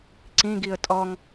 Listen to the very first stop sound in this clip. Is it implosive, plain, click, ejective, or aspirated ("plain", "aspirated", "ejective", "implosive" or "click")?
click